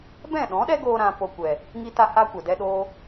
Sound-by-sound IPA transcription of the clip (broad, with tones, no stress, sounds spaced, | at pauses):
b ɛ̃˦˨ ɗ ɔ̃˨˦ ɗ ɛ˦ ɡ oː˧ ɾ ã˧ p o˧ kʷ ɛ˨ | ŋ i˦ t a˦ h a˦ kʷ ɛ˨ d ɛ˦ ɗ oː˦